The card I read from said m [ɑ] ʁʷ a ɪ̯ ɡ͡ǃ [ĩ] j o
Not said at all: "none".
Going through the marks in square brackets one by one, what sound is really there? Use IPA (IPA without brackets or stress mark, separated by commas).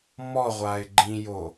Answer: ɔ, ĩ